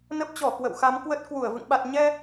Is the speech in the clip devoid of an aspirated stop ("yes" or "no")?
yes